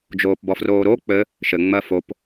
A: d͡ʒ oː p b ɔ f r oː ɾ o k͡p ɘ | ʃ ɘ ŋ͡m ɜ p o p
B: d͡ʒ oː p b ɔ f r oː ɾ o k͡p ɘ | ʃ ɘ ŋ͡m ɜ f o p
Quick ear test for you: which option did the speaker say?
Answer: B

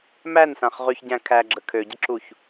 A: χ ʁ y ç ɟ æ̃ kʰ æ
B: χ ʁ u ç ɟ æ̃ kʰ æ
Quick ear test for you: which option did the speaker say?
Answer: A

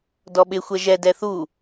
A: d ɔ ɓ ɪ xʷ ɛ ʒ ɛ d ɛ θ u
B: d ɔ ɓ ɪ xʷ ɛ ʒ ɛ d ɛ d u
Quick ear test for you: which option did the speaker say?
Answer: A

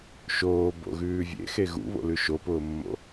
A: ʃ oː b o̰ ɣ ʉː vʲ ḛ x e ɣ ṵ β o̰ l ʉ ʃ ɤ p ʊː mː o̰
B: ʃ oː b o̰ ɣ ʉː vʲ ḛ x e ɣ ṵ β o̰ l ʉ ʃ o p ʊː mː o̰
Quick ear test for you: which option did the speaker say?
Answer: B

